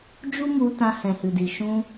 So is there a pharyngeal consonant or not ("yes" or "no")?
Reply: no